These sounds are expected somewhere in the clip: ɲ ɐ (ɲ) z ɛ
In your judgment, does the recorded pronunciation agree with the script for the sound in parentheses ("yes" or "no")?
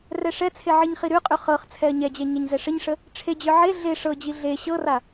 yes